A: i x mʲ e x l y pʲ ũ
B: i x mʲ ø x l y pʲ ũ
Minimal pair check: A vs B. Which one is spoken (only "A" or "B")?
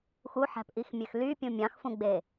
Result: B